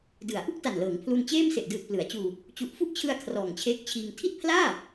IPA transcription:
d ɯ˩˦ a̯ ʔ u˥˩ k̚ t a˨˩ n l ɤː˩˦ ŋ pʰ l u˧ n t͡ɕ eː˥˩ m s e˨˩ ʔ d ɯː˨˩ t̚ p l ɯ˩˦ a̯ t͡ɕ uː˧ | t͡ɕ u˨˩ ʔ f u˥˩ ʔ t͡ɕʰ ɯ˧ a̯ kʰ r ɔː˨˩ ŋ t͡ɕʰ eː˦˥ k̚ t͡ɕʰ iː˧ ŋ tʰ i˥˩ t̚ pʰ l aː˥˩

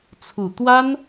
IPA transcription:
t͡sʰ u˨˩ t̪ w a˥ n

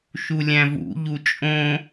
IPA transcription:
ʃ u lʲ æ̃ v ṵ ʎ u t͡ʃʼ õ

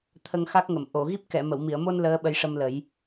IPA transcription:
t̪ʰ ə˧ ŋ x a˦˥ k̚ ŋ ə˨˩˨ m ʔ o˨˩˨ ɣ i˦˥ p̚ k ɛ˨˩˨ m ə˨˩˨ w m i˨˩˨ ə̯ m o˧ n l əː˧˥ ɓ ə˧ j ʂ ə˧ m l ə˨˩˦ j

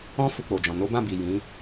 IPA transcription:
ɔ̃˦ f u˧ k͡p o˨ d͡ʒ ɔ̃˨ n o˨˦ b ã˦˨ b i˨ j ĩ˨˦

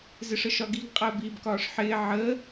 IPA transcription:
z ɪ ʂ ə ʃ ɒ ɡ i ɡ qʼ əː b iː b k ɒː ʂ ħ ɪː ʕ ə

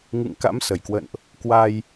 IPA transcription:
ŋ ɨ̰˧˨ ŋ k a̰˧˥ m s ə˧˩ j k w ə̰˧˨ n ʔ | k w a˧ j

